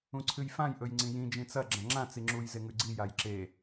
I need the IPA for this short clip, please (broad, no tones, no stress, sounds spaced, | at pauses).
ũ ǀʰ ɨ j f ã j ʔ ɵ j ŋ͡ǀ ĩ j ĩ d͡ʒ ĩ t͡s ɐ ɡ͡ǁ ɐ̃ ŋ͡ǁ ã t͡s i ŋ͡ǁ u j z e ŋ ʉ ɡ͡ǀ i j a j ǁ e